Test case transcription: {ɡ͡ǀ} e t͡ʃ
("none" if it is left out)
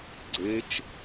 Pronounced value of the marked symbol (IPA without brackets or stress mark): ɡ͡ǀ